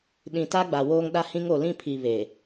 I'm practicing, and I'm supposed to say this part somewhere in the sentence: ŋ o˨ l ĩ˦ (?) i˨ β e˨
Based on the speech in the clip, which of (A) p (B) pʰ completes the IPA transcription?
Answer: B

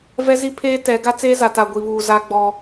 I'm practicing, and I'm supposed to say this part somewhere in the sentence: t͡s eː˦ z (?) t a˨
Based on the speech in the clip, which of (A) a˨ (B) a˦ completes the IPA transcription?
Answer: A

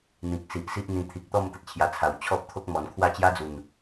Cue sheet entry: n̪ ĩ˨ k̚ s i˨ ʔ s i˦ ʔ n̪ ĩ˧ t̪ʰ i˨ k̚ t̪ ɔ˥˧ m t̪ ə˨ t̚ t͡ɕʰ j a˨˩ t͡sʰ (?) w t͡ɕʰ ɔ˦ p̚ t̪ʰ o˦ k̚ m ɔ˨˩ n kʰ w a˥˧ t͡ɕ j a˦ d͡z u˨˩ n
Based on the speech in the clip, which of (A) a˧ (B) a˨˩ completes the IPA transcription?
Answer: B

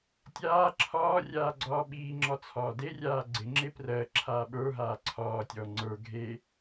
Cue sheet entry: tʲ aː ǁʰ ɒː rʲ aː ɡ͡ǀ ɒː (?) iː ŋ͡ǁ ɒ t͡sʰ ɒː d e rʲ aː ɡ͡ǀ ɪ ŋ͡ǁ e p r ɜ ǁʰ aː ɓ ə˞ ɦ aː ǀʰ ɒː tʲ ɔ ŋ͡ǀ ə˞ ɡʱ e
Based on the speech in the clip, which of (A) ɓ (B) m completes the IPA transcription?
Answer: A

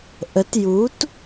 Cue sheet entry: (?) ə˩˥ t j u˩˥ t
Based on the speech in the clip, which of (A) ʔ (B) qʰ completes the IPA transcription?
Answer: A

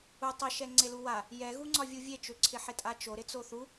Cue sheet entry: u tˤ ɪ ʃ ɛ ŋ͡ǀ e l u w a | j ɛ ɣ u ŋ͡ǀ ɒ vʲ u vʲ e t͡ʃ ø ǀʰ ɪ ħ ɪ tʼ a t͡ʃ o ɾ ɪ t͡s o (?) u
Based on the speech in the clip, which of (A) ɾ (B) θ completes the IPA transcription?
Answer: B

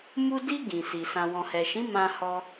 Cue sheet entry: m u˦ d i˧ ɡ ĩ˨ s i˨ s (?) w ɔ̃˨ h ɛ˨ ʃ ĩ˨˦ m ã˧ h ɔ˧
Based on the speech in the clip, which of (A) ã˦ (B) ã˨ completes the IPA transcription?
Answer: B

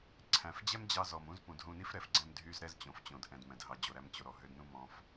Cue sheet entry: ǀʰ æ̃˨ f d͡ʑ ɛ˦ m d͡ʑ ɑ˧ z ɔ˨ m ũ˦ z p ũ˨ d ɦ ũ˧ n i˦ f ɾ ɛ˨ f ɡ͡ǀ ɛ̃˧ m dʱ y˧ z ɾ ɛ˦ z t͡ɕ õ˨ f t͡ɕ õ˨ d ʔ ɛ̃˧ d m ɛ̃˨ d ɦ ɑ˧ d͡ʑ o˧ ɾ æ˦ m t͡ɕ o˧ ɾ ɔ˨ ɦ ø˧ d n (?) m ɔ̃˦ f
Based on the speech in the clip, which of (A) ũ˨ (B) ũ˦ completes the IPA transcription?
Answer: B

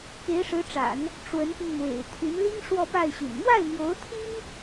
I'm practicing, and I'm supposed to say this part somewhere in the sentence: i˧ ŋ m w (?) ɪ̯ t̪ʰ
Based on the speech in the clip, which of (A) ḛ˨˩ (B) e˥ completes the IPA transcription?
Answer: A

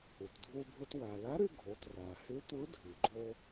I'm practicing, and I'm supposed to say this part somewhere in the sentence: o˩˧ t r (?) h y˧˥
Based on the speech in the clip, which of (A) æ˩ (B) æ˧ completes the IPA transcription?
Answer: A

